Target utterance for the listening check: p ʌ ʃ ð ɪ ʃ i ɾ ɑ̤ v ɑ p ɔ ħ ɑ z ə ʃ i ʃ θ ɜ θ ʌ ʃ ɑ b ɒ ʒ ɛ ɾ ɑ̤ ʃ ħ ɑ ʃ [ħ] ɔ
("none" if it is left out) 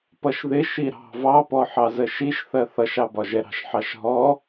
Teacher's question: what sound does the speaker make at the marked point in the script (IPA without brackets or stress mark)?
ɦ